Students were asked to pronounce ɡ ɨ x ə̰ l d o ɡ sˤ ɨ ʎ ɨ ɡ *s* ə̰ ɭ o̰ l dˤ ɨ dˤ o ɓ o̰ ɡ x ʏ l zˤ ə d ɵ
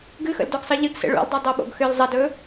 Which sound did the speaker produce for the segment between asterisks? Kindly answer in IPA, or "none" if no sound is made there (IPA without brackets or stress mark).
s